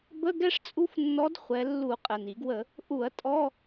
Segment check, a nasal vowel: absent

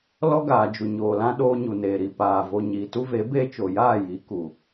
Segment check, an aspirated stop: absent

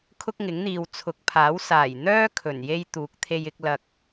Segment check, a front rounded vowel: present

